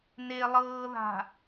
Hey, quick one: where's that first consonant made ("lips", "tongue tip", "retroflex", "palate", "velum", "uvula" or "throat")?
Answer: tongue tip